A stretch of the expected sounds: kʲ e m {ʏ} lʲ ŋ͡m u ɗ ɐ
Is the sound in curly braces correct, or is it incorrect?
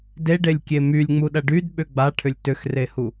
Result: incorrect